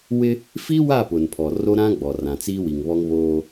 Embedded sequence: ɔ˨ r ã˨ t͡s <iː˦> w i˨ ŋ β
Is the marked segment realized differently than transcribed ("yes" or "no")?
no